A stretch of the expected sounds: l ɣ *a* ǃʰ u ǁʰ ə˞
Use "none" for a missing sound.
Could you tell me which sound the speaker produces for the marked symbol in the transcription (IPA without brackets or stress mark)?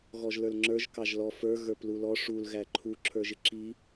æ